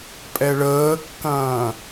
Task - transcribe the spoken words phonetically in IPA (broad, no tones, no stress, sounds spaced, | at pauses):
pʼ ɛ ɭ əː kː ɐ̃ː